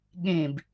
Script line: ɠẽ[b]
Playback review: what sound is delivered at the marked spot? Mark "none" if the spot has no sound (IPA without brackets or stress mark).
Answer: b